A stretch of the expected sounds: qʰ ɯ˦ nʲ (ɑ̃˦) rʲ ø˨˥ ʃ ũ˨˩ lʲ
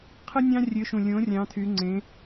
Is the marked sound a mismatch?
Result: no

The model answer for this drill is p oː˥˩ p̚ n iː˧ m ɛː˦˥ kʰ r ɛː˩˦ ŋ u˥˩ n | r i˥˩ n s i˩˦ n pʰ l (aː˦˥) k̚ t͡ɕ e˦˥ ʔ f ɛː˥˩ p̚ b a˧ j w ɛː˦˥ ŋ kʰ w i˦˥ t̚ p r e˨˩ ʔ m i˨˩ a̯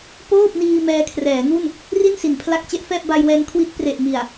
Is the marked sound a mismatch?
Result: yes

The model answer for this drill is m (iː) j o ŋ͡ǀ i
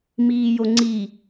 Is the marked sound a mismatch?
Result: no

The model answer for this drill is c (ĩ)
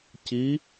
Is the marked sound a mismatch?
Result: yes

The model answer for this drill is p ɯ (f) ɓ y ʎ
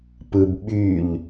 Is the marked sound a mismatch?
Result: yes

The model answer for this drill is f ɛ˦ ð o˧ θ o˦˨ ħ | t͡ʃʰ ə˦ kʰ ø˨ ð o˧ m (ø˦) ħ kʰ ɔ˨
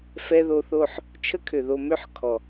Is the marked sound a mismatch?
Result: no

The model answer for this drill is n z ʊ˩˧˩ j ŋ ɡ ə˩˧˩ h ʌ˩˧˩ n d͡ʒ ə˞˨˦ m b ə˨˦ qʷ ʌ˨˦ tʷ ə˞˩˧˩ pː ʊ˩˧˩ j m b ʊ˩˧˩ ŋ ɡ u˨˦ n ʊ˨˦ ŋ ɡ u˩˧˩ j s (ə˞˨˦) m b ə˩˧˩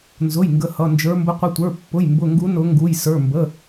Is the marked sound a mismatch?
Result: yes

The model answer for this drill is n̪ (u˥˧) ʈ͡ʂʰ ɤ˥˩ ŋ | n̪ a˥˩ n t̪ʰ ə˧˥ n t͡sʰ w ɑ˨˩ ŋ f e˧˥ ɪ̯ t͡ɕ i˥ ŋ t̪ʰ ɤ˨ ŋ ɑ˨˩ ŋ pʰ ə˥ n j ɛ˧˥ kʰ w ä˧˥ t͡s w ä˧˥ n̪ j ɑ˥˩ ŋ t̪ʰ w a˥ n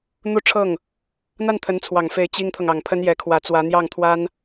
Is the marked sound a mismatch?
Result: no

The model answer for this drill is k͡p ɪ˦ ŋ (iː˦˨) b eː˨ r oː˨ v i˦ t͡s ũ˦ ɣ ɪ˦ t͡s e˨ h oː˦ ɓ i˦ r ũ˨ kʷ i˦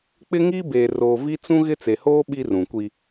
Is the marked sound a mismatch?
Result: yes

